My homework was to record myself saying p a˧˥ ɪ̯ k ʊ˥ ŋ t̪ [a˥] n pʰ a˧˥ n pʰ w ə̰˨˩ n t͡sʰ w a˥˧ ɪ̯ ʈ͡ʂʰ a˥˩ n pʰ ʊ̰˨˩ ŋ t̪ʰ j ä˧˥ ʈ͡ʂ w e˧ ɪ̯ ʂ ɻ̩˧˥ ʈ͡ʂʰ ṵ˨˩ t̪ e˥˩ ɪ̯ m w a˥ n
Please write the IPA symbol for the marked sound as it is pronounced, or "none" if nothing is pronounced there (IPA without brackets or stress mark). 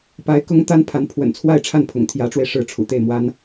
a˥